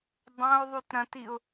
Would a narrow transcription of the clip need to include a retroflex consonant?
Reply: no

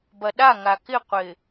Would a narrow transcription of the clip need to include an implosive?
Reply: yes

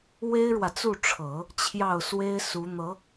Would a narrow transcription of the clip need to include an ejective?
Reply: no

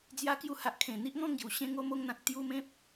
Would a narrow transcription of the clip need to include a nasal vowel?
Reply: yes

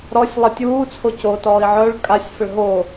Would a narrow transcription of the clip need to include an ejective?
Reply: yes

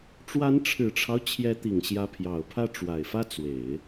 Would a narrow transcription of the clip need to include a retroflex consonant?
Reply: yes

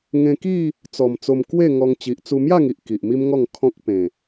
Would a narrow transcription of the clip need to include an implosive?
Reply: no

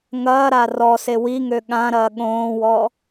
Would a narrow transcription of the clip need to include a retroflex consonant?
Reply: no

